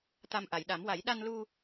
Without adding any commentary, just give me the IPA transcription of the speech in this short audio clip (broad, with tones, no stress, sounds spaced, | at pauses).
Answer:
t̪ a˨˩ m ʔ a˨˩˨ j ɗ a˨˩˦ m w a˨˩˦ j ɗ a˧ n l u˧